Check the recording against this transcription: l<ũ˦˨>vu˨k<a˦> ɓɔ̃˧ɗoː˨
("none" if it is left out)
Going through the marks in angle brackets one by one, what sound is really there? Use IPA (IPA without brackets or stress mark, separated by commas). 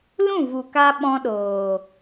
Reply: ũ˦˨, a˧